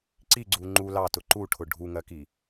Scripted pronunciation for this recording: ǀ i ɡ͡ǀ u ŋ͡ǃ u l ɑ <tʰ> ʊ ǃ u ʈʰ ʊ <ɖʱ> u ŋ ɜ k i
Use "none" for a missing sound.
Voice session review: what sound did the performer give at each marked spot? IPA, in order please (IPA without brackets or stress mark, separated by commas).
t, ɖʱ